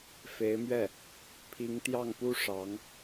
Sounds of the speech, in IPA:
f e˧˥ ɪ̯ m ɥ ɛ˥˩ | pʰ i˧˥ ŋ t̪ j ɑ˥˩ ŋ p u˥ ʂ ɑ˧˥ ŋ

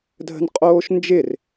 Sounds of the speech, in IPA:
dʱ ə̤ n qʼ oː ʃ n d͡ʒ ɪ r

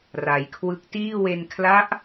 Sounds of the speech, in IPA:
r a˩˦ j kʰ w ɯ˦˥ k̚ t iː˥˩ w e˧ n kʰ l a˦˥ ʔ

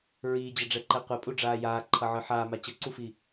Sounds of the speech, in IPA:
ɹ iː d͡ʑ ʌ ɖ͡ʐ ɛ ǃ ɛ qʷ ɛ pʼ u ɖ͡ʐ aː j aː ǃʰ ʌ ʕ ɯ ħ aː m a t͡ɕ ʌ ǀ u f i

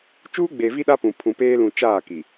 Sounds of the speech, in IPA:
t͡ʃ uː˦ ɡ͡b e˨ v i˦ ɗ a˦ p ũ˨ pʰ ũ˨ p eː˦ l ũ˨ t͡ʃ aː˦˨ k i˨

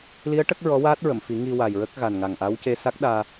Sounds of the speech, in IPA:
l i˧˥ ə̯ ʈ ə˦˥ k̚ ɹ ɔ˧˥ w aː˦˥ t̚ ɹ ə˨˩˨ m f i˨˩˦ ŋ i˧ w a˨˩ j ɹ ə˦˥ k̚ ɣ a˨˩ n ŋ a˨˩ ŋ ʔ a˧˥ w c e˧ s a˦˥ k̚ ɗ aː˧

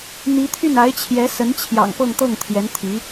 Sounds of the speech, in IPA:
n̪ i˧˥ t̪ʰ y˥˩ n a˧˥ ɪ̯ t͡ɕʰ j ɛ˧˥ s ə˧˥ n t͡ɕʰ j ɑ̰˨˩ ŋ p ɤ˥˧ ŋ t̪ ɤ˥˩ ŋ t̪ʰ j ɛ˧˥ n t̪ʰ i˧˥

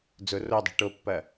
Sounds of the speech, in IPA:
d͡z ʊ r o dˤ ɛ̤ ʈ o pː ɐ

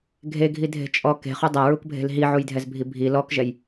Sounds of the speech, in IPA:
ɡʱ e ɡʱ i dʱ e̤ t͡ʃʼ ɔ k e̤ χ u dˤ a ɹ u k bʱ e̤ l ɦ i ʕ u j dʱ ɛ z bʱ i bʱ i l ɔ k ʒ ɛ j

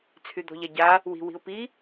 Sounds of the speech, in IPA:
t͡sʰ y d̪ ɔ̤ ʎ a ɟ a | w i̤ w i̤ ʊ̯ p i

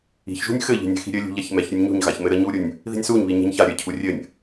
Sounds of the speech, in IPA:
i̤ ç ʒ ṳ nʲ x ɘ ʎ i̤ nʲ ɛ̤ x i̤ ɾʲ ɘ lʲ ṳ ʎ a ç m ɛ ç ɾʲ u nʲ ɲ ṳ ɲ ɣ a ç m ɘ ɾ ə ɲ u ɾʲ u nʲ | ð i̤ nʲ s u ɲ β i ɲ ɛ̤ ɲ ç a ɾʲ ɘ cʰ u rʲ ɘ nʲ

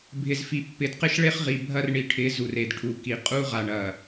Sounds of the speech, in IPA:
bʱ ɪ˨ z f i˨ pː ɪ˨ d q ɪ˦ ʃ ɭ e˦ χ ʁ i˨ bʱ ɐ˦ r ɳ i˨ ʈʰ ɪ˨˦ z u˨ r e˨ d ʈʰ u˨ k i˨ qʼ u˦ ʁ a˨ ɳ ɐ˨

